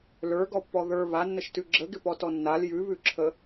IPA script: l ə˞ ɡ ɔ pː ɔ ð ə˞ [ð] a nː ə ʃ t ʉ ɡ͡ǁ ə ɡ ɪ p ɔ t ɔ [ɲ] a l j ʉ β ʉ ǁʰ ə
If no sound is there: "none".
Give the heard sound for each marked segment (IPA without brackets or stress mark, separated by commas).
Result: β, nː